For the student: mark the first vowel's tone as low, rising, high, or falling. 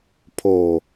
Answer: low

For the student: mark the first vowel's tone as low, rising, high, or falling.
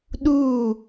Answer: falling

